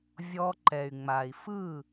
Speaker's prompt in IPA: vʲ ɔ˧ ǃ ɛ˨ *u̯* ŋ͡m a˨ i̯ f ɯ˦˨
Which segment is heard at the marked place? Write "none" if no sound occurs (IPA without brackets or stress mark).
y̯